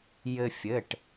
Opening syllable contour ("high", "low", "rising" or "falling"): high